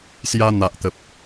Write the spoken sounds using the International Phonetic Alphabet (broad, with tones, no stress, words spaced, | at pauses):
sja˧n̪a˨ʔt̪ə˨p̚